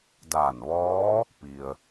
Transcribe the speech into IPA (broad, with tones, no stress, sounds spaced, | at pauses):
d aː˧˩ n ʋ ɔː˧˥ | p i˩ ə̯